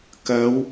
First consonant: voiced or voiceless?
voiceless